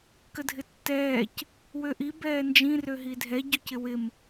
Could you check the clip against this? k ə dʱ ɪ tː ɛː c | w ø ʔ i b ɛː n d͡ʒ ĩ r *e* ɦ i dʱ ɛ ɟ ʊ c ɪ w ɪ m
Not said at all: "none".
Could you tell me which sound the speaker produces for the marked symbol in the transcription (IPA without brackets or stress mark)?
ø